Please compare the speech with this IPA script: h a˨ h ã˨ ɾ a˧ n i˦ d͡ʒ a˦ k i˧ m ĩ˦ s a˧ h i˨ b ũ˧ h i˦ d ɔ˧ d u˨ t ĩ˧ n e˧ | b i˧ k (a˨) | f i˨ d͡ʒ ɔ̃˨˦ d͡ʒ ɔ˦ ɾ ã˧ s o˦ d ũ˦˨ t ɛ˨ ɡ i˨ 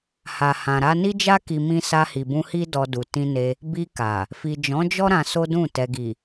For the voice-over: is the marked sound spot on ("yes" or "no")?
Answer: yes